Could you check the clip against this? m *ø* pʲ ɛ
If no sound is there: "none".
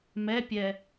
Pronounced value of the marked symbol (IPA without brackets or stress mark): ɛ